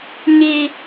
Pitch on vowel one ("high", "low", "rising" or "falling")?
high